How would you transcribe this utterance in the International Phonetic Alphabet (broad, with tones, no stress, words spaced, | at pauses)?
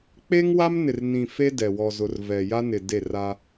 k͡pe˦ŋwa˦m nɪ˨rnĩ˨ fe˦dɛ˨ wɔ˨zʊ˨r vɛ˨ja˦nɪ˨ de˦˨ra˦